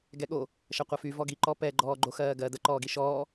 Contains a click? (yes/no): yes